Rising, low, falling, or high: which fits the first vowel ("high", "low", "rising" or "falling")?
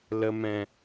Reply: low